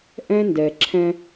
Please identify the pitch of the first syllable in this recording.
high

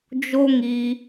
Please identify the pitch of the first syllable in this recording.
high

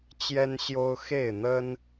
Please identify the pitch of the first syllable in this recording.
high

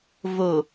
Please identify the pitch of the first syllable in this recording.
low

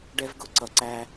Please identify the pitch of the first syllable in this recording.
high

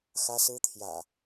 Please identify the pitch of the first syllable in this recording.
high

